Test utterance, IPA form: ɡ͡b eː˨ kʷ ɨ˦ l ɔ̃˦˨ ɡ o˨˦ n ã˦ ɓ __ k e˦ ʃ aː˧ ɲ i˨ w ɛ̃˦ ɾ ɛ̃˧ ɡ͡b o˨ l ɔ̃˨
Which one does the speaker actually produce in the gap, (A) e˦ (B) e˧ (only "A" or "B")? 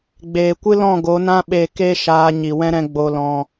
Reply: B